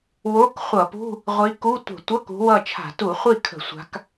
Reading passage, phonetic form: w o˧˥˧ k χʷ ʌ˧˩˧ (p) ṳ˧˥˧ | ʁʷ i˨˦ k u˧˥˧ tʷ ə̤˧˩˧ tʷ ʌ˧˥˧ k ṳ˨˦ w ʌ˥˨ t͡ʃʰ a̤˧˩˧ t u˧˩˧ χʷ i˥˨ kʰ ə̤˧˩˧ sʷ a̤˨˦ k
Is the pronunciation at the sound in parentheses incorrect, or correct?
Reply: correct